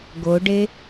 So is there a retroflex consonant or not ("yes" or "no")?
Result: yes